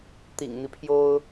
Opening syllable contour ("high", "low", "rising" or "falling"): low